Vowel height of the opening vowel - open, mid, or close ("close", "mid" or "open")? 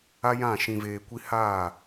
open